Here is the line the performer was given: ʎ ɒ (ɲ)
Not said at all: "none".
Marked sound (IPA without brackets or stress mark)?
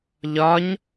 ɲ